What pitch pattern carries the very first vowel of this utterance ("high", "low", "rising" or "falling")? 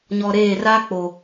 low